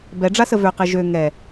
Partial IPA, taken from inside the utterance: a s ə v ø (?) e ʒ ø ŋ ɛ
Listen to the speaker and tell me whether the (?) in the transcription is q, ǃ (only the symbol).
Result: q